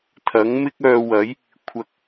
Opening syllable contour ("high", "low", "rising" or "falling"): rising